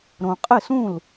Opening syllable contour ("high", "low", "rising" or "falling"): low